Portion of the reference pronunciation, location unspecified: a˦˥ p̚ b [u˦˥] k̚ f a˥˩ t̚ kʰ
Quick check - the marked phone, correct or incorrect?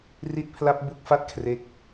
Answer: correct